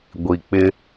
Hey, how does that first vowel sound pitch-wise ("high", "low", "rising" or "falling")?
low